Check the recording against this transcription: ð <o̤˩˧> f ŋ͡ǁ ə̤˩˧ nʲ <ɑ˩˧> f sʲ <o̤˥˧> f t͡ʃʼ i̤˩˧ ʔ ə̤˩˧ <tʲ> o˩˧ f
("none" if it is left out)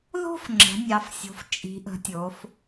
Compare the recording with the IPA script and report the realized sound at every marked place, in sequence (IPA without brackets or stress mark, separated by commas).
o̤˥˧, ɑ˩˧, o̤˩˧, tʲ